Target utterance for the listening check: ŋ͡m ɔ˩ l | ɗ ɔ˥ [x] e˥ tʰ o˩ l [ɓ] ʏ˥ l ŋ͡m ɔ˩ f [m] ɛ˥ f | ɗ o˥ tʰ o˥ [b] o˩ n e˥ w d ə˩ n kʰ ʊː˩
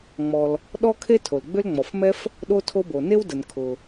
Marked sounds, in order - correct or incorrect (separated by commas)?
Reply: incorrect, incorrect, correct, correct